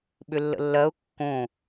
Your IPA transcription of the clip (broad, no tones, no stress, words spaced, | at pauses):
ɓʏlːə̰lːɜʊ̯ kːõ